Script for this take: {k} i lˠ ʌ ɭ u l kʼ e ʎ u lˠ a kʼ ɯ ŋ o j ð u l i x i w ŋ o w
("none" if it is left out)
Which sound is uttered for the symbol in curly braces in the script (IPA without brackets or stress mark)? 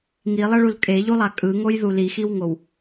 ŋ